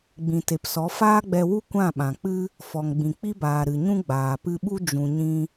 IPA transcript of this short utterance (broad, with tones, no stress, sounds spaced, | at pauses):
ɡ͡b ĩ˨ t e˨ p s ɔ˨˦ f aː˦ ɡ͡b ɛ˧ w u˦ kʷ ã˦˨ ɓ ã˨ k͡p ɨ˦ | f ɔ˨ ŋ ɡ͡b ĩ˨ k͡p i˦ b aː˨ ɾ ɨ˨ ɲ ũ˦ ɡ͡b aː˨ p ɨ˧ ɓ u˦ d͡ʒ ũ˨ ɲ ĩ˧